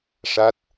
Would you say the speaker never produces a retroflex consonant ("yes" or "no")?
no